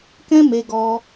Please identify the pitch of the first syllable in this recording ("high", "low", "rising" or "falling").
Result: high